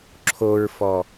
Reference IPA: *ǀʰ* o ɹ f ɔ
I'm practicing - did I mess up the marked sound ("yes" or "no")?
yes